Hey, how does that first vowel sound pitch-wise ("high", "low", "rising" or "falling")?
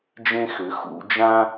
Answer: high